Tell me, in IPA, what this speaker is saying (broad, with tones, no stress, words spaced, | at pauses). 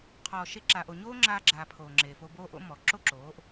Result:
qʰɔː˨ʃe˧ǁa˨ʔo˨ ɲoː˦ŋ͡ǁaː˧ɡ͡ǁaː˨ pʰoː˨ŋ͡ǁeː˨fo˧ boː˧ʔo̰˨˦ mɔ˨ ǁo˦ǁoː˨˦ʔ